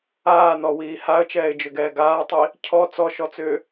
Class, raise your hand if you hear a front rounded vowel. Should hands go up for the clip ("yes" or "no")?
yes